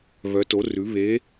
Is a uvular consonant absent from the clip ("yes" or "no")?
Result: yes